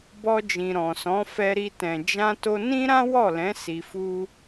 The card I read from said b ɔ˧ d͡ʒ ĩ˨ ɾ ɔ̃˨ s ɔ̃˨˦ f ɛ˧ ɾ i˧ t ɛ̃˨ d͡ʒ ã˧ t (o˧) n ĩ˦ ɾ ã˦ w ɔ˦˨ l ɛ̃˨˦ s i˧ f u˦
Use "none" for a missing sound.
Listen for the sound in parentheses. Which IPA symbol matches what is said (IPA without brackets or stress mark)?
o˧